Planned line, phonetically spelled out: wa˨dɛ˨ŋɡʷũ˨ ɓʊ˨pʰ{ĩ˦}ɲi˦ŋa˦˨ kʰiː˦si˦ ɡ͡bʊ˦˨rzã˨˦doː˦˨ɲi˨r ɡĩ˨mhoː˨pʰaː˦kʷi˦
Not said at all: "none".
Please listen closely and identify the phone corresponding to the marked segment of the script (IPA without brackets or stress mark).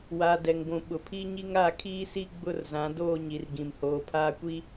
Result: i˦